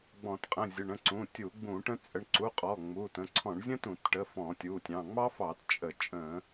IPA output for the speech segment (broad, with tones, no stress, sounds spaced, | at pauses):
ɡ͡b ɔ̃˧˩˧ t qʼ ə̃˩˧˩ zʲ ə˩˧˩ ɳ ə̃˩˧˩ ǀ ũ˩˧˩ tʲ u˧˩˧ ɡ͡b ũ˧˩˧ ʈ ə̃˥ t͡sʼ ə˩˧˩ ɳ ǀ u˩˧˩ qʼ ɔ˩˧˩ ŋ͡m u˩˧˩ t ə̃˩˧˩ ǀʰ ɔ̃˧˩˧ ɳ zʲ ə̃˥ t ũ˧˩˧ t ʈ ə˩˧˩ f ɔ̃˧˩˧ tʲ u˩˧˩ tʲ ɑ̃˩˧˩ ŋ͡m ɑ˥ f ɑ˧˩˧ t t͡ʃʼ ə˧˩˧ t͡ʃʼ ə̃˧˩˧